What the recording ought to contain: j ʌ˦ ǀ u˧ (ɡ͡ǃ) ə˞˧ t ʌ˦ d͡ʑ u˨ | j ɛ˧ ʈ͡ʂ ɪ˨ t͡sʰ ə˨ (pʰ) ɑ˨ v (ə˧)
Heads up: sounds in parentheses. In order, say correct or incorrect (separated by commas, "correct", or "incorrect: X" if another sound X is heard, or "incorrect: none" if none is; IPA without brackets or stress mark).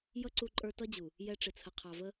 incorrect: ǃʼ, incorrect: qʰ, incorrect: ə˦